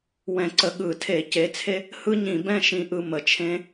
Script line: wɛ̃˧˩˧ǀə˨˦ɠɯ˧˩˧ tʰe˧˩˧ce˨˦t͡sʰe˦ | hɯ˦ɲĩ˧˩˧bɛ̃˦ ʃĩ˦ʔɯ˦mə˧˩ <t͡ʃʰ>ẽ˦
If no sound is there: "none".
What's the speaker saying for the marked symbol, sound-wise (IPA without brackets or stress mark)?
t͡ʃʰ